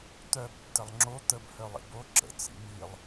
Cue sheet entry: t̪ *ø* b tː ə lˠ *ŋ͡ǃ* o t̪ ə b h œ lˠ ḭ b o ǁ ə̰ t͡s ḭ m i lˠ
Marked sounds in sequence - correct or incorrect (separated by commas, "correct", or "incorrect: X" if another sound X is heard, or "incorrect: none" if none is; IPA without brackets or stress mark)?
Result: incorrect: œ, incorrect: ŋ͡ǁ